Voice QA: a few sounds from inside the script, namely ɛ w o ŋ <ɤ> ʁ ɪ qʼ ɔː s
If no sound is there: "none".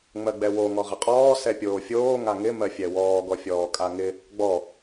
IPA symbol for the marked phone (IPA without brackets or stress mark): ɔ